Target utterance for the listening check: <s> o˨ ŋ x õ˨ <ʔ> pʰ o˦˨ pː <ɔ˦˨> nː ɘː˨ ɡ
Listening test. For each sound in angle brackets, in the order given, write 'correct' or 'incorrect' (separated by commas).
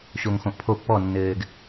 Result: incorrect, correct, correct